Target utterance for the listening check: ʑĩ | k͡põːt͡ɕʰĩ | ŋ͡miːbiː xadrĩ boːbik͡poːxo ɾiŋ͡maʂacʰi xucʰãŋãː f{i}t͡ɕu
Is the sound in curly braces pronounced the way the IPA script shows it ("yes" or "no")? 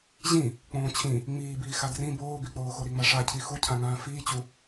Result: no